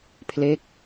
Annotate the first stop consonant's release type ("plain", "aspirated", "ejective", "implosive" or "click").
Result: aspirated